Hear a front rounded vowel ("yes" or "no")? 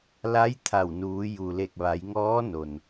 no